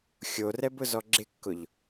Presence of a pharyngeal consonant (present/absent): absent